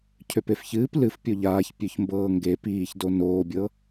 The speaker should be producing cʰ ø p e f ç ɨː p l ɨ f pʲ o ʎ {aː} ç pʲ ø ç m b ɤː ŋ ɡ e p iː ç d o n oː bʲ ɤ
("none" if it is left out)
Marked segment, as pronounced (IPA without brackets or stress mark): aː